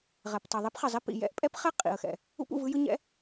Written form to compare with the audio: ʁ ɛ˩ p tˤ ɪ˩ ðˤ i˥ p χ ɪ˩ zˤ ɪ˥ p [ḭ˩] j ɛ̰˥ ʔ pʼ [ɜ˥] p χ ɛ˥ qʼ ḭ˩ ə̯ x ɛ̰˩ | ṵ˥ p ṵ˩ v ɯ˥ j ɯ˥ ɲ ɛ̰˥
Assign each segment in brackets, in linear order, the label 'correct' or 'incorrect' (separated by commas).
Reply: correct, incorrect